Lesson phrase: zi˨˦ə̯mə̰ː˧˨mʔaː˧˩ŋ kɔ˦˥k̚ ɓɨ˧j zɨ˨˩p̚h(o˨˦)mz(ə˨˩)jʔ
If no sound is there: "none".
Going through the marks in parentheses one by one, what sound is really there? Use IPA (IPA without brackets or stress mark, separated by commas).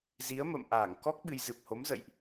o˨˦, ə̰˧˨